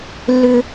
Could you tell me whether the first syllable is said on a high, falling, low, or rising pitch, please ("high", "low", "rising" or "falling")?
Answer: high